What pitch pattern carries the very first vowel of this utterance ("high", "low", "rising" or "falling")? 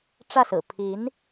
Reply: falling